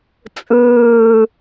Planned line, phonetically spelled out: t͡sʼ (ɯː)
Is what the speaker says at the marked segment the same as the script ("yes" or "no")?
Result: yes